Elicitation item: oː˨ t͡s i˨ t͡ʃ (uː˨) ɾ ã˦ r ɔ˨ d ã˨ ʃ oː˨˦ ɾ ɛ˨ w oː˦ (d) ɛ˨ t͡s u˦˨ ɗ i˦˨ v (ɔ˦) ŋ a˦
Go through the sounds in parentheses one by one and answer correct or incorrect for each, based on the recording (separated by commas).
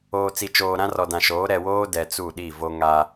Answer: incorrect, correct, incorrect